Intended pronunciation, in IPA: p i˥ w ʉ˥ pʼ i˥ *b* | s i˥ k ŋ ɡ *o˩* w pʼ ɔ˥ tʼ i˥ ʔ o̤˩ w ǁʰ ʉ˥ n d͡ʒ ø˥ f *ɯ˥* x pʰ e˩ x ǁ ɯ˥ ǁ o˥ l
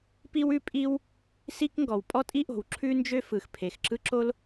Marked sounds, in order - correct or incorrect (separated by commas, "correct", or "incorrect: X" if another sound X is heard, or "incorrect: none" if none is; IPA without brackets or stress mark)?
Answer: incorrect: w, incorrect: ɔ˩, incorrect: ɯ˩